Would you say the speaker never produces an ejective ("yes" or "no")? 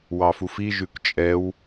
no